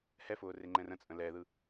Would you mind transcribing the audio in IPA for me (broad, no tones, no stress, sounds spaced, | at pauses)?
h ɛ f ʊː r e ŋ͡ǃ ɛ̃ r ə̃ t͡sʼ ə̃ l ɛ ð ɯ